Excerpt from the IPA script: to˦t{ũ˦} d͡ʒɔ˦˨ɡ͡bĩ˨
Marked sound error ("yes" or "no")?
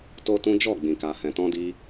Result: no